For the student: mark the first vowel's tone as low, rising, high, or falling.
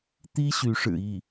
high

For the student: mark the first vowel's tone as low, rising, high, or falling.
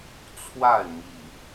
falling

